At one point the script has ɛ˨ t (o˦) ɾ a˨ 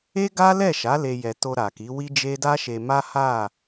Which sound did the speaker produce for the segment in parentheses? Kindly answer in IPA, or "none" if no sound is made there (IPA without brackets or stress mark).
o˧